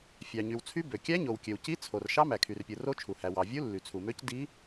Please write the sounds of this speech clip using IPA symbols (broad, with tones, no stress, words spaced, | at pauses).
fʲɑ˩ɲy˩wt͡sʰy˧˥ bø˩kʲæ˧˥ ɲo˩wkʲø˩wci˧˥ t͡sʰo˩r ʃɑ˧˥mæ˩kʰy˩rpʲɯ˩ ro˧˥t͡ʃʰu˩hæ˩ wɑ˩vʲu˧˥ lːy˩t͡sʰu˩mø˧˥c di˧˥